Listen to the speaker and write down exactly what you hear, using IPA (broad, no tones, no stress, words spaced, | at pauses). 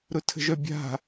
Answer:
ɾʊtʰə̤ʒœbʲa̤